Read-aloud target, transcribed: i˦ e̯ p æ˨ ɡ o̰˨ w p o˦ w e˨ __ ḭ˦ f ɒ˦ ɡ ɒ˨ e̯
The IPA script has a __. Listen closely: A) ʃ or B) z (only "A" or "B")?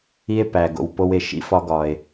A